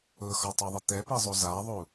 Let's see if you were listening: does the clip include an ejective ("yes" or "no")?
no